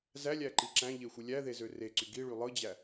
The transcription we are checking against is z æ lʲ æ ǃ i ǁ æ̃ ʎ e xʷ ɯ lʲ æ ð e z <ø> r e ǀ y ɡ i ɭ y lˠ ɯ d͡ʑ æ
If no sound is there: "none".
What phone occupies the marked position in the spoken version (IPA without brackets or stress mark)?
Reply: ø